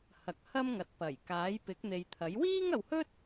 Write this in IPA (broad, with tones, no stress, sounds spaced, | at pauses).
h ɐ˨˥ k̚ h ɐ˥ m ŋ ɐ˨˥ t̚ p ɐ˨˩ j k aː˨˥ j p ɪ˨˥ k̚ n̪ e˨ j t̪ʰ ɐ˨˥ j w iː˥ ŋ ɐ˨ w h ɵ˥ t̚